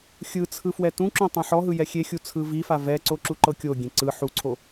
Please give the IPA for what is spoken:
xʲ ɯ t͡sʰ ɯ f w ɛ t ũ ǁ õ tˤ ẽ ħ ɔ ɦ ɯ j ɛ xʲ e xʲ u t͡sʰ ɯ v i f a v ɛ ǀ o ǁ u ǃ ɤ kʲ o ɡʲ ẽ ǀ ɯ ħ u ǀʰ o

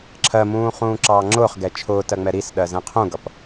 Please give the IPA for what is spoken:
ǁʰ ɜ m ũː χ ũː ǁ ɑː ŋ͡ǁ ʊː χ ɡ ɛ t͡ʃʰ ʊː t ɜ ŋ͡m ɛ ɾ i s ɗ ɜ z ɛ̃ qʰ ũ ɡ ʌ p

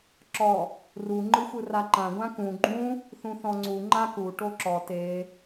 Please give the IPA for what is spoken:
ǁ ɔ | r u ŋ͡ǃ ɯ xʷ ɯ r a ǃ ã ɡʷ ã k ũ ɡ͡ǃ ũ | θ ũ θ ɔ̃ ŋ͡ǀ u ŋ͡ǃ a k u ʈ o ǁ ɔ t e

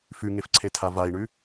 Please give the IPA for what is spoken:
f ʉ ŋ e f ǀʰ e tʰ a v a i̯ ɳ ʉ

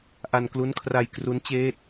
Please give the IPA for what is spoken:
ʔ a˧ n k l u˦˥ n kʰ r a˧ j k r u˦˥ n t͡ɕ eː˥˩ t̚

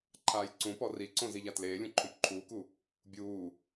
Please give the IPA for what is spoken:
ǃʰ aː j ǀ ũ p ɔ r i ǀ õ z i ʎ a t l eː lʲ ũ ǃʰ õ p ǃʰ uː k u | bʲ uː

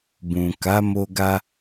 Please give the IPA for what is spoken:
b ũ˨ k a˨˦ m o˧ ɡ a˧

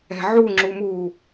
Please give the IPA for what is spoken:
ɛ̤ ʕ u ŋ͡ǁ u m u

